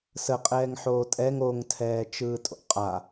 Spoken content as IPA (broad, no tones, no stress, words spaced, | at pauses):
səqʼɛːŋ ħoːtʼɛŋ oŋtʰɛː t͡ʃɯːtʼo̰qʼa